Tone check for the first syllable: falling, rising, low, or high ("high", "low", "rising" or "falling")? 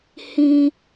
high